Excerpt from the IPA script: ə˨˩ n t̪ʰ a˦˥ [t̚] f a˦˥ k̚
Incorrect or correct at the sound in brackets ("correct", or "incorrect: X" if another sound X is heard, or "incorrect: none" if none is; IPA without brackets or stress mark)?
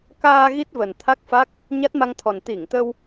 incorrect: k̚